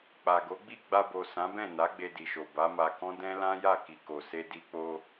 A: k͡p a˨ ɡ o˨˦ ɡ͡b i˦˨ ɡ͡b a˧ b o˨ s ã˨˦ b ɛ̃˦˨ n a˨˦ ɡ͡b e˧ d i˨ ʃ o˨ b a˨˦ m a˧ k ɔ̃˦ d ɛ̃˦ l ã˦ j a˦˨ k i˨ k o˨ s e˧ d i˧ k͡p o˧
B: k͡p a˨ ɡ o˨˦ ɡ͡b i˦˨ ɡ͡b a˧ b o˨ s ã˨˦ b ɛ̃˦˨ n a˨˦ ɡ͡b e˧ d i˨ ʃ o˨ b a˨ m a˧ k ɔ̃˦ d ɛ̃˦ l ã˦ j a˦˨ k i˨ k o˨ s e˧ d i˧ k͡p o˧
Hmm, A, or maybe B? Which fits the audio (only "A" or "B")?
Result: A